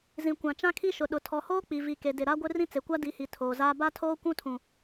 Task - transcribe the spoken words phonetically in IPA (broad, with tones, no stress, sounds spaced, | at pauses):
z ĩ˨ kʷ ã˨ t͡ʃ ã˦ kʰ i˦ ʃ ʊ˨ ɗ ʊ˨ tʰ ɔ˨ h oː˦ k͡p i˨ v i˨ k e˨ d ɪ˨ ɾ a˦ ɡʷ ɪ˦ r ĩ˦ t͡s e˨ kʷ a˦ d i˨˦ h i˨ tʰ oː˨ z aː˦ b a˦ tʰ oː˦ kʷ ũ˦ tʰ ũ˨